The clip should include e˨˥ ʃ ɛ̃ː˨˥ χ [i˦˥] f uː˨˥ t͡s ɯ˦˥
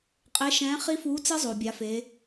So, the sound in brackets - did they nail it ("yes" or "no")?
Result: yes